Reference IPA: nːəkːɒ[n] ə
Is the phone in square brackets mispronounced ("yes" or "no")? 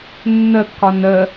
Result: no